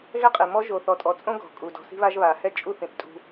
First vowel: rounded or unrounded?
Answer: unrounded